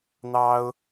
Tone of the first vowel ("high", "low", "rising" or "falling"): high